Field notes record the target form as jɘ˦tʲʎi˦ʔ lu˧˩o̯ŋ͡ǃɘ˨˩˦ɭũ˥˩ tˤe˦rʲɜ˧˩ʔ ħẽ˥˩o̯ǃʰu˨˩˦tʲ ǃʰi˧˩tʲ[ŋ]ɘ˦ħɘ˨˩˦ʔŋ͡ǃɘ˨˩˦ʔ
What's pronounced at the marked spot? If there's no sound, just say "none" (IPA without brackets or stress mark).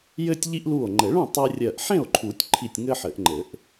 ŋ